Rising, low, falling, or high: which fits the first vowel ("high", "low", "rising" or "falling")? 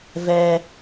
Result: high